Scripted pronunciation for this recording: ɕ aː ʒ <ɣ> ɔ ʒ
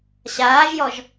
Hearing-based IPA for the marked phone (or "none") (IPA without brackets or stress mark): j